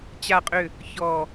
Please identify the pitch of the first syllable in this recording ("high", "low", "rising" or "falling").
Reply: low